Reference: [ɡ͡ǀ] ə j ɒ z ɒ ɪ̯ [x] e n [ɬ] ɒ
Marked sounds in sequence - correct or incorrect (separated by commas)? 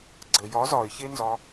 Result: correct, incorrect, incorrect